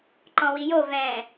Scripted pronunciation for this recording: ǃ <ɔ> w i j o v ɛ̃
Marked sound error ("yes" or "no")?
yes